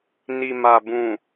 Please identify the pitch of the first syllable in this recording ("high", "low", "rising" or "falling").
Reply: low